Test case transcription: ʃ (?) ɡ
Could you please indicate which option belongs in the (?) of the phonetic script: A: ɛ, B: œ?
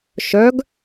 B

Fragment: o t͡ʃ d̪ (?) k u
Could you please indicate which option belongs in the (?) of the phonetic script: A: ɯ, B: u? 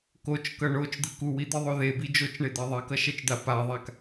A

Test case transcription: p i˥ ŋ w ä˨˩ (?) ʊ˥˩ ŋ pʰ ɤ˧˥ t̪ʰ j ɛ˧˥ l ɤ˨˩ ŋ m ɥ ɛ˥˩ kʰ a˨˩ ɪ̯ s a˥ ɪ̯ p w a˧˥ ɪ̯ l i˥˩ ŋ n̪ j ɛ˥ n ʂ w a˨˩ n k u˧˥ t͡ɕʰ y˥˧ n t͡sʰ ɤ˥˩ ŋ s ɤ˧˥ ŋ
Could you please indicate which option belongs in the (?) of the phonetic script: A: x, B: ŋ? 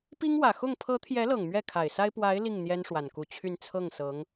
A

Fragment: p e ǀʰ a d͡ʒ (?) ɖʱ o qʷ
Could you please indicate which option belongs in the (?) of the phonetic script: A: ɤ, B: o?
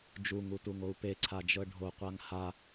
A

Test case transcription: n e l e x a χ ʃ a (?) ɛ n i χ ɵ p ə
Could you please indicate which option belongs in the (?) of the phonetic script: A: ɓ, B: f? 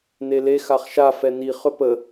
B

